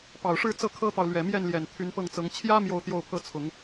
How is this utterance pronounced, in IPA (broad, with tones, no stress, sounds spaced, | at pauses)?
p ɑ˨˩ ʊ̯ ʂ ɻ̩˥˧ t͡s ɤ˥˩ kʰ ɤ˥ t̪ ɑ˨ ʊ̯ l ɥ ɛ˨˩ m j ɛ˥˩ n l j ɛ˨˩ n t̪ʰ y˧˥ n p ɤ˥˩ ŋ t͡s ɤ˧˥ ŋ t͡ɕʰ j ä˥ m j o˥˧ ʊ̯ t̪ j o˥˧ ʊ̯ pʰ ɤ˥˩ t͡sʰ ʊ˨˩˦ ŋ